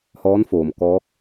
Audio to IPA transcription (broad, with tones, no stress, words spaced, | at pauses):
hɔː˧˥nfoː˩m kɔː˧˥k̚